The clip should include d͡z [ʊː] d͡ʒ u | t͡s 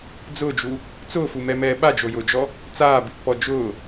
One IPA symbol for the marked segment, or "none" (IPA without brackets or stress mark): ʊː